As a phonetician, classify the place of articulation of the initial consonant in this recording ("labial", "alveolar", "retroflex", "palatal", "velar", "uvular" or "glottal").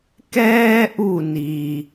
velar